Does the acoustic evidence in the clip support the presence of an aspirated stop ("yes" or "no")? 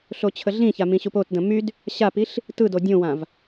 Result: yes